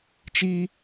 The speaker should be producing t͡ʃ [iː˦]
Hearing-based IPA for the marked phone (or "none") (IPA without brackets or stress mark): iː˦